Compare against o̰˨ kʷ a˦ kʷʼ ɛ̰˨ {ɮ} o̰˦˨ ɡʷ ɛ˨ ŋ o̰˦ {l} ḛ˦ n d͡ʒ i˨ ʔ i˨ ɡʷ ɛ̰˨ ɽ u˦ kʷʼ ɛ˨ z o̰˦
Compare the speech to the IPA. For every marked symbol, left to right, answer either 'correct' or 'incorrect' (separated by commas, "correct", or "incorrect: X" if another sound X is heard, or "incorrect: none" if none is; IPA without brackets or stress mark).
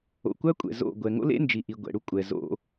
incorrect: z, correct